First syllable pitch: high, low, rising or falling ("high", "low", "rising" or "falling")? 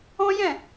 high